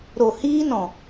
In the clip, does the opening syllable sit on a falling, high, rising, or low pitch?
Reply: low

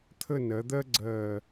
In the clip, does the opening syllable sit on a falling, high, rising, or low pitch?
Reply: falling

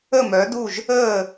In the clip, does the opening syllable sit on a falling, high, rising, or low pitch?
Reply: falling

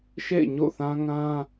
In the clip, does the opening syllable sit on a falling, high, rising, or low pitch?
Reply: falling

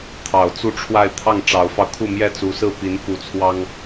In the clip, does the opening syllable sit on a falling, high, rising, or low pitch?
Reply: low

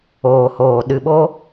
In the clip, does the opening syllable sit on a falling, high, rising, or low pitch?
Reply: low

